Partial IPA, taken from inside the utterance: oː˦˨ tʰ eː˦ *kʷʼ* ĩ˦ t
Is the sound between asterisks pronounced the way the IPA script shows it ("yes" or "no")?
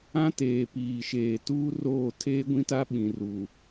no